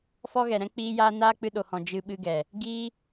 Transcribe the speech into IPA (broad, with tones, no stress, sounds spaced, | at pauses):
f ɔ˦ ɣ ɛ˨ ɾ ɛ̃˦ k͡p iː˦ j aː˦ n aː˦ k͡p ɨ˧ ɗ o˨ h ɔ̃˨ d͡ʒ ɨ˧ ɓ ɨ˧ ɡ ɛ˨ | ɡ iː˦